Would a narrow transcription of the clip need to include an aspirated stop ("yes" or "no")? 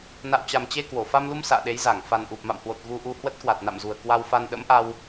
no